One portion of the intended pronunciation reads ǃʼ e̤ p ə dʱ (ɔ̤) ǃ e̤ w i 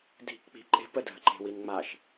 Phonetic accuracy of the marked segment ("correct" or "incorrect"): incorrect